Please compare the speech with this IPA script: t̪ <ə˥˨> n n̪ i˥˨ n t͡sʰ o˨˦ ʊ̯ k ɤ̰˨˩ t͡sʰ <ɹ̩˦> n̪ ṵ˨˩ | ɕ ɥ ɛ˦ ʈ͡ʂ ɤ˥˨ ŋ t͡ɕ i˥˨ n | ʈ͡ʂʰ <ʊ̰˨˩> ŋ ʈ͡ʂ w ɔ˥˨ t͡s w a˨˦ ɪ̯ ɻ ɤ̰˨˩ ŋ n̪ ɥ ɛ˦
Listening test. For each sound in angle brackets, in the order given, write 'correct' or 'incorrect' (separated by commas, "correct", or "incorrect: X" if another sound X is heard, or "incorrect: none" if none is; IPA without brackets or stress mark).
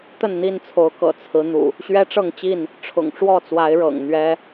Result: correct, incorrect: ɹ̩˨˦, correct